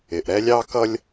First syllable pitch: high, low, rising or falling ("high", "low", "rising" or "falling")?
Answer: low